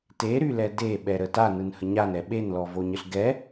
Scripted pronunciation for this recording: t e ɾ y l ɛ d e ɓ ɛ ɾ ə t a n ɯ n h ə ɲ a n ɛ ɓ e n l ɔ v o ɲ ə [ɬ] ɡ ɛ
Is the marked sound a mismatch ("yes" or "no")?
no